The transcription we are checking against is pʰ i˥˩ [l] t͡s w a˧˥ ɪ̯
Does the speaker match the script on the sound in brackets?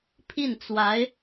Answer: no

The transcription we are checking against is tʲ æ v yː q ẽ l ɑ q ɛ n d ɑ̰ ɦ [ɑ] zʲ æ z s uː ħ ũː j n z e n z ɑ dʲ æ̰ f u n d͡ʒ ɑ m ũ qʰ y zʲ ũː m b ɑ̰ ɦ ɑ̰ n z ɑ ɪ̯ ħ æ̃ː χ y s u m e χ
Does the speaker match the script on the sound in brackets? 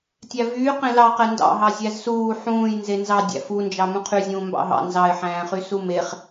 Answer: yes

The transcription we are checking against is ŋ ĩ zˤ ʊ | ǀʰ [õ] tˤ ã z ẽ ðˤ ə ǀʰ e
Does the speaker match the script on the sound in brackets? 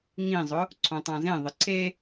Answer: yes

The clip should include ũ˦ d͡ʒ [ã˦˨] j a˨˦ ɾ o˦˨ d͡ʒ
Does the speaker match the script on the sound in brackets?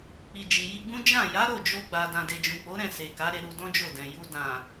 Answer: yes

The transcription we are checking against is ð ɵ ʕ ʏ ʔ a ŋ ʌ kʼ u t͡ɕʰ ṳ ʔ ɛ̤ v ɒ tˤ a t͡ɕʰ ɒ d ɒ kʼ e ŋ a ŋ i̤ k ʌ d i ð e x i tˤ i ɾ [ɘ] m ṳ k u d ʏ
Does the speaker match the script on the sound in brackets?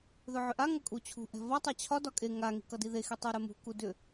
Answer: no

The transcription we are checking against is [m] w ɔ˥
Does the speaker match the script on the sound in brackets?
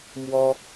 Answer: yes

